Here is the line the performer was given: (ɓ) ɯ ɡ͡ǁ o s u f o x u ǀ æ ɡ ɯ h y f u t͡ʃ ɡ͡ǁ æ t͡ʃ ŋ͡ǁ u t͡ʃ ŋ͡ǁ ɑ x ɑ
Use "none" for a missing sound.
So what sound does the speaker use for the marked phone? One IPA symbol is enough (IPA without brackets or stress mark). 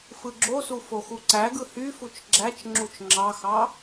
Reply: f